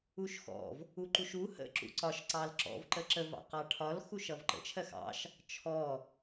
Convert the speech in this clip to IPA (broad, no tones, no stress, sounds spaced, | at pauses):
u ʃ x ɔ̰ v | u ǃ u ʃ u h ə̰ ǁ ṵ ǀ ɒ ʃ ǀ ɑ l ǁ ɔ̰ v ǃ ə ǁ ə v ɑ̰ q ɑ ʈʰ ɒ l x u ʃ ʌ v ǃ ə̰ t͡ʃʰ ɜ x ɑ̰ ʃ | t͡ʃʰ ɔ